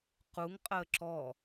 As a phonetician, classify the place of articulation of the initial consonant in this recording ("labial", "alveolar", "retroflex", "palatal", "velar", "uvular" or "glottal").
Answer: uvular